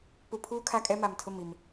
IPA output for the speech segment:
p u˨ pʰ uː˦ kʰ a˦ kʼ ɛ˦ m a˨ m tʰ ʊ˦˨ m i˨ m

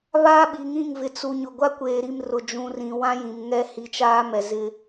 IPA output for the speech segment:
β aː˦ ɓ i˨ ŋ ĩ˦˨ ŋ v ɪ˨ t͡s u˨ ɲ ʊ˨ ɡʷ a˦ kʷ eː˨ ɾ i˦˨ m r ʊ˨ d͡ʒ ũ˨ r ĩ˨ w ã˦ j ĩ˨ m ŋ ɛ˦ h i˨ t͡ʃ aː˦ m ɛ˨ z ɪ˦

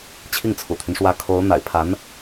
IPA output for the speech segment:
t͡ɕʰ i˥˩ ŋ t͡sʰ ṵ˨˩ t̪ʰ y˦ n ʂ w ä˧˥ kʰ o˧˥ ʊ̯ n̪ a̰˨˩ ɪ̯ pʰ a˧˥ n

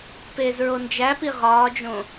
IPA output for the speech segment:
p eː z ɹ o n d͡ʒ æ p i ʁ ɒː d͡ʒ õ

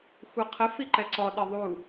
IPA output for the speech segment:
xʷ ʌ qʰ ə f i ǃ ɛ ǀ ɔ ɗ ɪ ðˤ u

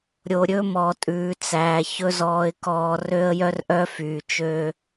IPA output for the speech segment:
ɾʲ o˨ ɾʲ ɵ˦ m ɔ˨ tʼ ʉː˨ t͡s æː˨ ç ɵ˦ z ɔː˨ ɪ̯ k ɔː˨ r ø˦ ə̯ j œ˦ r ʔ œ˦ f yː˨ t͡ʃ ø˦

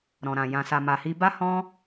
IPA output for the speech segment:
ɾ ɔ̃˨ ɾ ã˨ j ã˨ s a˨ m a˨ h i˧ b a˦ h ɔ̃˦

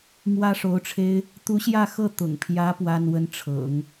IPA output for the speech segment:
m w ä˥ ʂ o˧˥ ʊ̯ ʈ͡ʂʰ e˥ ɪ̯ | t̪ u˧˥ ɕ j ä˥˧ x ɤ˥˩ t̪ ʊ̰˨˩ ŋ pʰ j ä˧˥ p w a˥ n w ə˥ n ʈ͡ʂʰ ɤ̰˨˩˦ ŋ

